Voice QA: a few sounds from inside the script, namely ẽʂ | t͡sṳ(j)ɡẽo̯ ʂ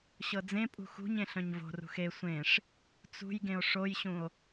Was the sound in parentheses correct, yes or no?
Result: yes